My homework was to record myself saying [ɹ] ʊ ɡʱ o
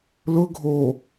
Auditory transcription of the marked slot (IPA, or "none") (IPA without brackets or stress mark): l